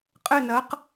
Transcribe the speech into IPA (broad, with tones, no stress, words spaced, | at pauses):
qʼɘ˧˩nɐ˩˧q